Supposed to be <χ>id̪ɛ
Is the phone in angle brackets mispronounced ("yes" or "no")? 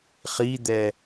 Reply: no